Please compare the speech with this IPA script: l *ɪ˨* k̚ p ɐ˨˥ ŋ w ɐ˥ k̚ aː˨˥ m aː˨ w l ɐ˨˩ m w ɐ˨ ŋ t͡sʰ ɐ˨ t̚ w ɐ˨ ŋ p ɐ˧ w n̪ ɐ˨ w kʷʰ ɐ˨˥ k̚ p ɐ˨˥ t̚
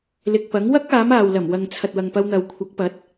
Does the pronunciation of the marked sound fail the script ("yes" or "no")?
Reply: no